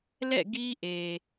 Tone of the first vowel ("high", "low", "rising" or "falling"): falling